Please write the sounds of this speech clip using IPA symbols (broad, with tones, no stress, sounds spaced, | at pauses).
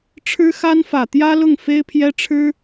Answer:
ʈ͡ʂʰ ɻ̩˥ x a˥ n f ä˨˩ t̪ j ä˥ l ʊ˥˩ ŋ f e˥ ɪ̯ pʰ j ɛ˥ ʈ͡ʂʰ ɻ̩˥